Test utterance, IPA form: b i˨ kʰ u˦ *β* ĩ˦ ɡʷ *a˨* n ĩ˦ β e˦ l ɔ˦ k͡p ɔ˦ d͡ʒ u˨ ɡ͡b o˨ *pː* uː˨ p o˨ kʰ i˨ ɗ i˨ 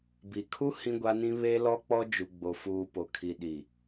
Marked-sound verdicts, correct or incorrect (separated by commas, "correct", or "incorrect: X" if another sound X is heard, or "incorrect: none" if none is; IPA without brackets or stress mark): incorrect: h, incorrect: a˦, incorrect: f